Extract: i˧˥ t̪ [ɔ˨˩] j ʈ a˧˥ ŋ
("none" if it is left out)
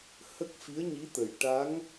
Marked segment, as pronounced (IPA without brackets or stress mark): ə˨˩